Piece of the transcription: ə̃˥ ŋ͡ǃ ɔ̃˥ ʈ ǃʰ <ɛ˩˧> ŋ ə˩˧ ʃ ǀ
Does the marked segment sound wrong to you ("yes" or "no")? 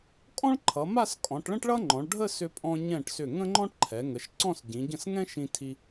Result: no